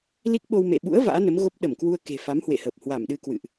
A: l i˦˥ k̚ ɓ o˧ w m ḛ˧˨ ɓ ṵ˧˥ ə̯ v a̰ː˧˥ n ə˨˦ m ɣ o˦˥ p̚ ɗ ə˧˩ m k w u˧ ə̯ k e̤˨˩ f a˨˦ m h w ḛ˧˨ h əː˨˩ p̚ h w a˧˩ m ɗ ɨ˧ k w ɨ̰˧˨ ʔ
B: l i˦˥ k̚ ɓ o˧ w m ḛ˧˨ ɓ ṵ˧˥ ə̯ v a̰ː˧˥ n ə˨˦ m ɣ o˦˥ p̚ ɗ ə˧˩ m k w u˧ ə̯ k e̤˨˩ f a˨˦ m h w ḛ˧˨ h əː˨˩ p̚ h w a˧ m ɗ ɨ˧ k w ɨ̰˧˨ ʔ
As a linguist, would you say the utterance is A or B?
A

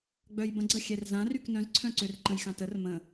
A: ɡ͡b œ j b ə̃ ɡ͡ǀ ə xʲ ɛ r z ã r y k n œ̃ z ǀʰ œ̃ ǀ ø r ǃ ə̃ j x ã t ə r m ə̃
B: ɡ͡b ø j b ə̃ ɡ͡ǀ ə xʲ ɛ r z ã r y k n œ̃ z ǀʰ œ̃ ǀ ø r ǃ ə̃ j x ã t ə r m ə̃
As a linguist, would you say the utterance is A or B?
A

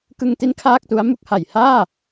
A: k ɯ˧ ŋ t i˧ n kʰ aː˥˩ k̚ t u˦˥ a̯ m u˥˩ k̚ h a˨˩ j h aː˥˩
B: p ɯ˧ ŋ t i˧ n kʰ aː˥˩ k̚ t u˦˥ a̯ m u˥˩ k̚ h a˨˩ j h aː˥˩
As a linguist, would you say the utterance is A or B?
A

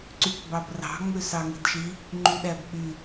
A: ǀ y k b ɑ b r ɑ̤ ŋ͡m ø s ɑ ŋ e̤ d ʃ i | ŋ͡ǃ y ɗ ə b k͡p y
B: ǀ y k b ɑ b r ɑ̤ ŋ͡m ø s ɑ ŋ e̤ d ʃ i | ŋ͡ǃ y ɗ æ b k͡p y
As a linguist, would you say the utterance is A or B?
B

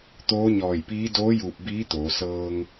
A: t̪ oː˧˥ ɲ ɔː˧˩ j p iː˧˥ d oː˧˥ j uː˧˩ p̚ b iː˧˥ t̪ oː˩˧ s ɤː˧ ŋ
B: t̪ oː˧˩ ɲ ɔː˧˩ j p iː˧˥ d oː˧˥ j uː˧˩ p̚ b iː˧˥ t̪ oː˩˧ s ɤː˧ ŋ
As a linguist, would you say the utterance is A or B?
A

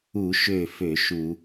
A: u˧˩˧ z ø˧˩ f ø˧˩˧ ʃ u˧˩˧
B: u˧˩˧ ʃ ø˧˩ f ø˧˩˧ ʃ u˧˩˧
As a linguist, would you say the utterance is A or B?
B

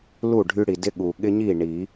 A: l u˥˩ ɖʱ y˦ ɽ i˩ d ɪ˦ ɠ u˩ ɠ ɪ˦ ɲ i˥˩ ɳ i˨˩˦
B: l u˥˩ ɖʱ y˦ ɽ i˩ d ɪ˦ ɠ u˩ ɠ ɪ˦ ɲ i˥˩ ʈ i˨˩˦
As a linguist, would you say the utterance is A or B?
A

